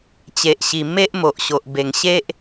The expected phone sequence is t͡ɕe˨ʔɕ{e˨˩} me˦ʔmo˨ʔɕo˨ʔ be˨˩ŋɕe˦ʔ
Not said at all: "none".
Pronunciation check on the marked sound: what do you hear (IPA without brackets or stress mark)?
i˨˩